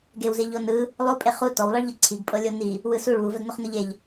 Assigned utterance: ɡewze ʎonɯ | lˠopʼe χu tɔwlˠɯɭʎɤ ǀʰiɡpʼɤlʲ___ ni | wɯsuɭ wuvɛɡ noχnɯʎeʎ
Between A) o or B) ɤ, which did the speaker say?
A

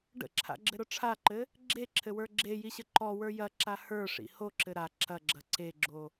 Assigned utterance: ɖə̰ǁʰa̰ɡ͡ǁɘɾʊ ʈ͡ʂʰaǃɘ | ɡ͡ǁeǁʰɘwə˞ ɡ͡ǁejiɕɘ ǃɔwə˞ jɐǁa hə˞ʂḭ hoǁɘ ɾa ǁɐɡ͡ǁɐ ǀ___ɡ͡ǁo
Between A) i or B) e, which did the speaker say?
B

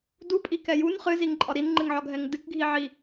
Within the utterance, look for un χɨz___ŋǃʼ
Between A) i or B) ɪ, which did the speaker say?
A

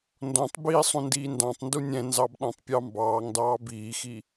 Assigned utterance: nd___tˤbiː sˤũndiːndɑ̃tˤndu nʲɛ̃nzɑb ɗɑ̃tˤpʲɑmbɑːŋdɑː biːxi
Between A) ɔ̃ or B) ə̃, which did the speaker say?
A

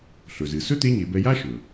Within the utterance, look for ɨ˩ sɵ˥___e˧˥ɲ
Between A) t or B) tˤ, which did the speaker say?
A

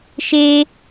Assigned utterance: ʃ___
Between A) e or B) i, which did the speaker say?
A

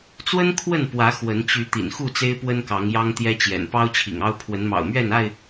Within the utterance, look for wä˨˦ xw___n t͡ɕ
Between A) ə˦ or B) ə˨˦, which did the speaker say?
B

